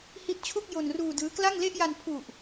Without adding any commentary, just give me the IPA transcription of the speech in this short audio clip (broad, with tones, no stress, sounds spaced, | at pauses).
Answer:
h i˦˥ t̚ t͡ɕʰ u˥˩ k̚ j o˧ n r uː˧ d ɯː˦˥ k l a˥˩ ŋ l e˥˩ ʔ j a˧ n pʰ u˨˩ ʔ